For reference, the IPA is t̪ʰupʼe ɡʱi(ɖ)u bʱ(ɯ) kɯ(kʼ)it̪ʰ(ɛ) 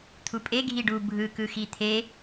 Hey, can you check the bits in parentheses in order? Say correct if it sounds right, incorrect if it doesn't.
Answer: correct, correct, incorrect: x, incorrect: e

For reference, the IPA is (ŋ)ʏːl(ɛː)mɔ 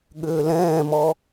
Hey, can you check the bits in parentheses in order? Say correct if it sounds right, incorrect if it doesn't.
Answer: incorrect: ɠ, incorrect: ɛ̃ː

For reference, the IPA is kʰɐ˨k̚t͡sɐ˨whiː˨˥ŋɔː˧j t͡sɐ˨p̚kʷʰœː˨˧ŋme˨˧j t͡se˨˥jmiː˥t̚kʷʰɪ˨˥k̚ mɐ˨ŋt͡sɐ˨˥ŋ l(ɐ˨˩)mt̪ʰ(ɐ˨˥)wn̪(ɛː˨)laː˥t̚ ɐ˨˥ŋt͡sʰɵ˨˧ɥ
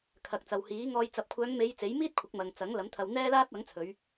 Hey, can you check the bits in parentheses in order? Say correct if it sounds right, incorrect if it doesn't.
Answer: incorrect: ɐ˨˥, incorrect: ɐ˧, incorrect: ɛː˥

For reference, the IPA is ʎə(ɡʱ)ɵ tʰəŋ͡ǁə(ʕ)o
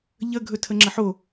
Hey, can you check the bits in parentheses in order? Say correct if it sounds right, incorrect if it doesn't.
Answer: correct, incorrect: ħ

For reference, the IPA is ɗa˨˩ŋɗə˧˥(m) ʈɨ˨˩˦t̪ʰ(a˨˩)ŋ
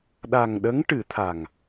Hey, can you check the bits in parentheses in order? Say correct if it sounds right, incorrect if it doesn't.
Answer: incorrect: ŋ, correct

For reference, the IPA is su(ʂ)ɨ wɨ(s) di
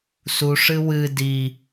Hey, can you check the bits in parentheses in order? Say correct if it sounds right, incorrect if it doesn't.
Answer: correct, incorrect: none

